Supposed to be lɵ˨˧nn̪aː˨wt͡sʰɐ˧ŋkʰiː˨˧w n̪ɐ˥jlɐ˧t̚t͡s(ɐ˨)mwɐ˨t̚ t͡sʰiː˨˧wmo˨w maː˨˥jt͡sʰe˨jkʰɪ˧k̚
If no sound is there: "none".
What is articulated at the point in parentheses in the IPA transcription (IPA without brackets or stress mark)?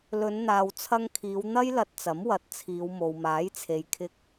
ɐ˨˥